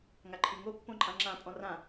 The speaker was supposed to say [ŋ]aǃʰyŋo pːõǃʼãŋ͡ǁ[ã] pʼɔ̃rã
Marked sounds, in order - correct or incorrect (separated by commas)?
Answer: correct, correct